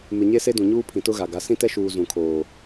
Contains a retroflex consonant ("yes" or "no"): no